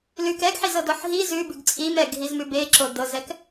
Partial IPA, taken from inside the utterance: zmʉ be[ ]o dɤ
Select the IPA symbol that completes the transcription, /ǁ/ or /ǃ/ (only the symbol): ǁ